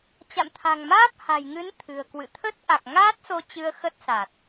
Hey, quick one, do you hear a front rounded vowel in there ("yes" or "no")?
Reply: no